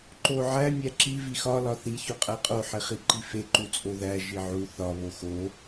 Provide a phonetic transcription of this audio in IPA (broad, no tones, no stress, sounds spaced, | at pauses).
ǃ o ʕ æ mʲ æ ǁ i v i x ɒ l ɒ θ i ç o qʼ æ qʼ o ħ e χ i ǃ i f e ǃ u t͡sʼ o ð æ ʒ i ʕ u θ ɒ β o x o